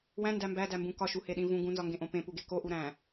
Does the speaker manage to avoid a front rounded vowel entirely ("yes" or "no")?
yes